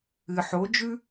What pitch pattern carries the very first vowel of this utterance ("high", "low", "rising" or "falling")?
low